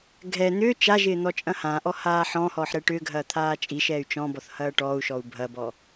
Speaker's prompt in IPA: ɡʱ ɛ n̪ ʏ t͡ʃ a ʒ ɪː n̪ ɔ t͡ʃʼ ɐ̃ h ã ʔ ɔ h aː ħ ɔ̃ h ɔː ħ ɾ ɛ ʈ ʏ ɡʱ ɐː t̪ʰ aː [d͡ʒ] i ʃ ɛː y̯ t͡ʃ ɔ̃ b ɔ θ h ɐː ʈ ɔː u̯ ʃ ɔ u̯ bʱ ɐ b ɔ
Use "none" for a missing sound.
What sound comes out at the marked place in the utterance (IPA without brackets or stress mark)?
t͡ʃʼ